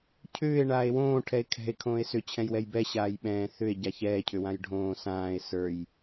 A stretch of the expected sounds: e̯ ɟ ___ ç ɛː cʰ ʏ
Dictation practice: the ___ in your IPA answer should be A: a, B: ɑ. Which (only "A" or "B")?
A